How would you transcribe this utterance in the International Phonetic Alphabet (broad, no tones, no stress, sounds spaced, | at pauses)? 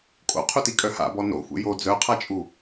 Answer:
kʼ o̰ qʰ u t i kʼ œ h a̰ b ɔ n o̰ xʷ ḛ j o d͡z œ qʰ a t͡ʃʼ u